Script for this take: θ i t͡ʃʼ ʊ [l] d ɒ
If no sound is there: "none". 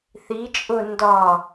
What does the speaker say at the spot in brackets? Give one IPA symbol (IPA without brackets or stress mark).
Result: n